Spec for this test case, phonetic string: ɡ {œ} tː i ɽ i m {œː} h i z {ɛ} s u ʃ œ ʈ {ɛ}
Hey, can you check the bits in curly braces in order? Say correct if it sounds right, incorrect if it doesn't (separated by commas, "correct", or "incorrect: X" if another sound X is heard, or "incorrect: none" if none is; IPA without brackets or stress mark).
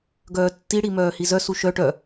incorrect: œː, correct, incorrect: œ, incorrect: œ